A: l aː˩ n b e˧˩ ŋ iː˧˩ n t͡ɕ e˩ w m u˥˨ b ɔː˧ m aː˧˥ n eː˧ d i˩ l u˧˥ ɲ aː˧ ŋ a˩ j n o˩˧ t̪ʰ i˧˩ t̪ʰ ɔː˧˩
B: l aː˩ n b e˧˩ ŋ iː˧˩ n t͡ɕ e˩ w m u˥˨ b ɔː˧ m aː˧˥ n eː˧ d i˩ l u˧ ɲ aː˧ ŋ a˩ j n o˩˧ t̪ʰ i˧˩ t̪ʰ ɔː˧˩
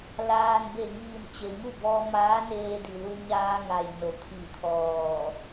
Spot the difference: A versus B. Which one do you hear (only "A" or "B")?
B